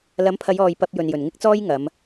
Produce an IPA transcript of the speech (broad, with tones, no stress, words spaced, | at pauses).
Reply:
lɐ˨˥mpʰɐ˨˧jɔː˨j pɐ˧p̚ jɵ˨njɵ˨˩nŋɪ˥k̚t͡sɔː˥j ŋɐ˨˧m